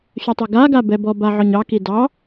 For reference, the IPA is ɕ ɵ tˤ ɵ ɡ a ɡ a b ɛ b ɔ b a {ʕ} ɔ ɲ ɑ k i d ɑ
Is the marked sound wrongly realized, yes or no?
no